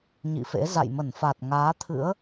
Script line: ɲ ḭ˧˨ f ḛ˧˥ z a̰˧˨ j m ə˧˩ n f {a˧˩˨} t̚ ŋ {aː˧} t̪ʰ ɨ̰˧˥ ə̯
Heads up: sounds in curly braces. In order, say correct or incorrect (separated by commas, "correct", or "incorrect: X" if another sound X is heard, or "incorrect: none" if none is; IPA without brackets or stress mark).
incorrect: a˨˩, incorrect: aː˨˦